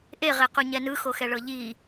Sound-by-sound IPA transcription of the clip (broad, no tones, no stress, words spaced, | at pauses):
ʔeʁequɲɛ nɯxoxɛɭɤ ʎi